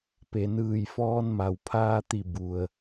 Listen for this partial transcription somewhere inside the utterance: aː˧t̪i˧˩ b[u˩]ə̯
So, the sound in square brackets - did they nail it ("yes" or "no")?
yes